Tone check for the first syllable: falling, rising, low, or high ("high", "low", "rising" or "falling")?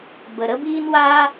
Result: low